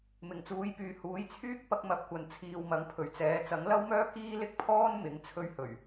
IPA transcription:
m ɪ˨˩ ŋ t͡s uː˨˥ j p yː˨˧ h uː˨˥ j t͡sʰ yː˥ k̚ p ɐ˥ k̚ m ɐ˧ p̚ kʷ ɐ˨˧ n t͡sʰ iː˨ w m ɐ˨˥ ŋ pʰ ɵ˨˩ ɥ t͡s ɛː˨˧ t͡s ɐ˨˥ ŋ l ɐ˥ w m œː˥ k iː˥ l ɪ˥ k̚ pʰ ɔː˥ n m ɪ˨˥ ŋ t͡sʰ ɵ˧ ɥ h ɵ˨˩ ɥ

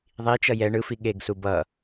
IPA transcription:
ðˤ i t͡ʃ ʌ j ɛ ɳ ɯ f i ɠ e ɡ s u b ʌ

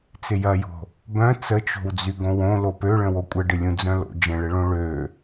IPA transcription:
t͡s ɪ j ɐ j o̤ | b œ̃ t͡s ə t͡ʃ o̤ w d͡z y ɡ õ w õ l o p ø ɭ ə̃ w o kʷʼ ə ɖ ɪ lʲ ũ d͡z œ̃ l o̰ d͡ʒ ə̃ ɭ ɪ ɭ õ ɭ ø

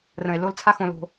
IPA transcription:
r ə̃˩ e̯ l o˨ l t͡sʰ a˨ x õ˩ l o̤˩

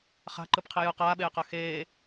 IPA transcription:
χ a̤ ǃ ɯ p qʰ i j ɯ q aː ɓ eː q a x eː

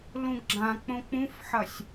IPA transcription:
l ũ ɡ ɡ͡ǁ ã k͡p õ k͡p ũ f ħ ɐ sʲ

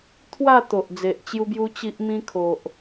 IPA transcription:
t̪ʰ w a˥˧ t̪ o˨ ʔ d͡z e˨ ʔ t͡ɕ j u˧ b j u˧ t͡ɕ i˦ ʔ m ĩ˦ kʰ o˨ ʔ

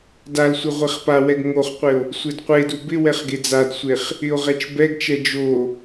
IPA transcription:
d a l sʷ ɪ ʁʷ ɛ χ p a w ɛ ɡ ŋ o χ qʷ ɪ o̯ | sʷ ɪ d qʷ e d u b ɪ w ɛ χ ɡ e d͡z a d sʷ e χ | ɪ o̯ ʁ ɛ t͡ʃ b ɛ ɡ t͡ʃ ɛ d͡ʒ o

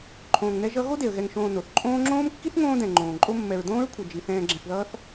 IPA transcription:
ǃʰ õː˨ ŋ n ɛ˦ ʒ ʌ˦ ɣ o˥ d e˩ ə̯ ɣ ɛ˨ ŋ ʃ õː˨ n o˩ θ ǃʼ õː˦ ŋ͡ǁ õː˥ m kː i˥ θ ŋ õː˦ d ɛ̃˩ ŋ͡ǃ õː˩ ǃʼ o˦ mː ɛ˨ ɹ d õː˥ ɹ kʷʰ ʌ˨ d͡ʒ i˩ θ ɛ̃ː˨ ɡ͡ǁ ɛ̃˨ θ ð ʌː˦ θ

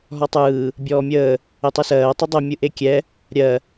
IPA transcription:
ɦ ɔ tˤ ɯː | bʲ ɔː mʲ əː | e tˤ ɯ s ɜː tˤ ə dˤ ɛ mʲ ɯ ʔ e kʲ ɛ | ɾʲ ɜ

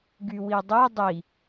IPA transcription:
ɡ y w i dˤ ɛ dˤ i

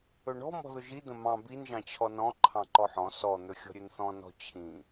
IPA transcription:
ɵ ɳ ɔ̤ m ɔ̤ ð ʊ ʒ i d̪ ə̃ m ɑ̃ b i n ʒ ɑ̃ t͡ɕʰ ɔ n ɔ̃ ǃʰ ɑ̃ ǃ ɔ ħ ɔ̃ s ɔ n̪ ɵ xʲ ɔ̤ ɾʲ ɵ n θ ɔ̃ n ɔ̤ t͡ɕʰ ĩ

